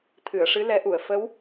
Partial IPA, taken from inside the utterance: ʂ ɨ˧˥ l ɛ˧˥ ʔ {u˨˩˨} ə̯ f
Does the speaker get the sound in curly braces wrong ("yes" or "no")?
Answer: no